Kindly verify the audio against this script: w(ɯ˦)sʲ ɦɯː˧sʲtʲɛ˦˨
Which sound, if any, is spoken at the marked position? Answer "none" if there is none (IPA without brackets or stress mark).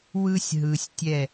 ɯ˦